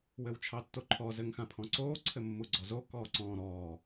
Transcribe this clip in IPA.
w ɘ w t͡ʃʰ ɑ tː o ǃʰ ɔ z ɘ ŋ x ã pʰ ɔ̃ ǀ oː ǀʰ ɘ mː u ɡ͡ǀ ɔ z o k ɔː ǀ ɔ̃ː ɾ ɔː

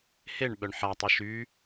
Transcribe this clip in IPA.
h e ɳ ɓ œ ɳ ħ a tˤ e ʃ y

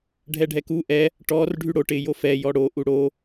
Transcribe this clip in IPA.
ɖʱ ɛ ɖʱ ɛ k u ʔ ɛ | ʈ ɔ r ɖʱ y ɽ o ʈ ɪ j o f ɛ j ɔ ɽ o ʔ u ɽ o

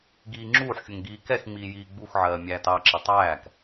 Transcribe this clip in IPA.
ɡ iː ŋ͡ǁ uː ħ xʲ ʊ ŋ ɡ iː k ɛ x ŋ͡m iː j iː ɡ͡b u x ʕ ɜː mʲ æː t ɑ ǁ ɪ tˤ æː k

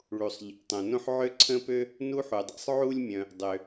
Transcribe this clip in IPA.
ɭ u˩ sˤ ʎ ḛ˩ tˤ õ˩ n õ˥ ħ ʕ ø˥ ǀʰ ə̃˥ p ø˥ | n u˥ ħ u˩ dˤ ḛ˥ sˤ ʕ u˥ lʲ mʲ œ̃˩ | dˤ ø˩

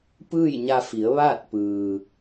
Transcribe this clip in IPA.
p ɯː˥˨ j ɲ a˧ f i˩˧ ə̯ ʋ aː˥˨ t̚ p ɯː˩

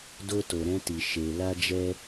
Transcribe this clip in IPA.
d o˧ t o˨ ɾ ɛ̃˧ t i˨ ʃ e˨ l a˧ d͡ʒ ɛ˧

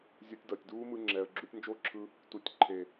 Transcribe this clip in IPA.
zʲ o˧ tʲ d ʌː˨ tʲ d uː˦ m ɯ˧ ŋ͡ǁ ɛː˨ ə̯ ɡ͡ǁ u˧ tʲ n d͡ʒ o˦˨ ǁʰ ɯ˧ | t u˨ tʲ ǃʰ e˨

